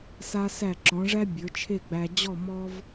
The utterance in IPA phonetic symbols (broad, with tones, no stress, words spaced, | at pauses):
sa˧sæ˧˩ǁɔ̃˩˧ʐæ˥ bʲə˞˩˧t͡ʃʰe˥˧ɡ͡bæ˧ d͡ʑɔ˥˧ mɔ˥v